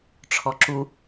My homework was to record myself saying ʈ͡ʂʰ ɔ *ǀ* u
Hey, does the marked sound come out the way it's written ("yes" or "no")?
no